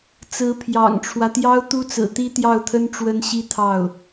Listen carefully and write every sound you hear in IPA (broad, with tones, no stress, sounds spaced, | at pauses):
t͡s ɹ̩˧˥ pʰ j ɑ̰˨˩ ŋ ʈ͡ʂʰ w ä˦ t̪ j ɑ˥ ʊ̯ t̪ u˥ t͡s ɹ̩˨˩ t̪ i˥ t̪ j ɑ˥˩ ʊ̯ t̪ʰ ə˥ n ʈ͡ʂ w ə˥ n ɕ i˥ t̪ʰ ɑ˥˩ ʊ̯